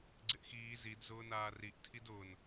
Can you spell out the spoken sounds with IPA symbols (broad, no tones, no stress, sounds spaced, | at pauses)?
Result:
ɡ͡ǀ ɪ ʔ x iː z i d z ʊː n aː r i ʔ tʰ i d ʊː n